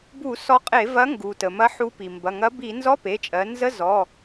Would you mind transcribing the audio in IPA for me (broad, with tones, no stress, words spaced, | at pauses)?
bu˧˩˧sɔ˨˥qʼe˧˩˧ vɐ˨˥ŋɡu˩ tə˩mɐ˨˥ ħu˨˥pi˩mbɐ˩˧˩ ŋɐ˨˥bi˧˩˧ nzɔ˧˥˧pe˩˧˩t͡ʃʼɜ˩˧ nzə˧˥˧zɔ˩˧˩